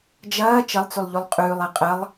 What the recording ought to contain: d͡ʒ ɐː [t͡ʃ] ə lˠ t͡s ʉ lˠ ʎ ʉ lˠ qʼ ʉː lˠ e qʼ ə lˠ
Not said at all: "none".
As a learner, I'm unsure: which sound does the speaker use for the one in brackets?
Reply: t͡ʃ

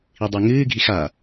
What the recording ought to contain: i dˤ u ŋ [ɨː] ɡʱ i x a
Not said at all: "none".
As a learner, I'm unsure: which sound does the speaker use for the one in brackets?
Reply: ɨː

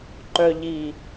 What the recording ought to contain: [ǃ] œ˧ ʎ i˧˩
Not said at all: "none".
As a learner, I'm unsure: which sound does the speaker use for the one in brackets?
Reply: ǃ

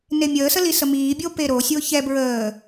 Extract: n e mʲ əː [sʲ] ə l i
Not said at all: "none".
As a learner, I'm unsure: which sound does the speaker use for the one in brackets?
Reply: s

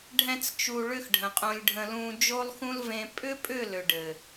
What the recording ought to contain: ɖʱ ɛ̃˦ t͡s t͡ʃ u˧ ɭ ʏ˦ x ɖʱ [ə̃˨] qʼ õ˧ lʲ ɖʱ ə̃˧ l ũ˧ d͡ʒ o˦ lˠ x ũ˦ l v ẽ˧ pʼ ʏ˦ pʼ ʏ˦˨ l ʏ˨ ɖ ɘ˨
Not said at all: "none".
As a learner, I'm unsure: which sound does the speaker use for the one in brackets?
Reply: ə̃˨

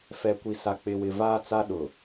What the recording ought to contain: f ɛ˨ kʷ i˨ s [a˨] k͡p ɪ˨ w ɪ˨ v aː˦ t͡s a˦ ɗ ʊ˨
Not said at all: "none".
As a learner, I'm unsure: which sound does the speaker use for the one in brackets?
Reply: a˨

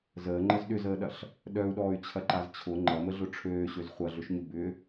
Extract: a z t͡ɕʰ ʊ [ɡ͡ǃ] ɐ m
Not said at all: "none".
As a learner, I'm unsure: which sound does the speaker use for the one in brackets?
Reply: ŋ͡ǃ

